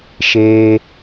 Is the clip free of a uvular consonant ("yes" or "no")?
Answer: yes